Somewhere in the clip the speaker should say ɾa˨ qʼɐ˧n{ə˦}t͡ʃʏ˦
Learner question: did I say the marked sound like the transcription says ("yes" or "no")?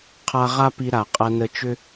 no